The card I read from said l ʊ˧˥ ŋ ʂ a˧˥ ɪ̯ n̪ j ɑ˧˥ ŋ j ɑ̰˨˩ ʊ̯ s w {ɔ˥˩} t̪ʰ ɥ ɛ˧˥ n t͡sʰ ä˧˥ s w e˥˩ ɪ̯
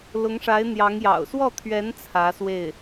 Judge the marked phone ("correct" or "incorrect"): correct